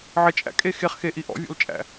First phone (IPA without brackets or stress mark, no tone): ʕ